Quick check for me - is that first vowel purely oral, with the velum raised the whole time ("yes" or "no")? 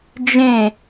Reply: no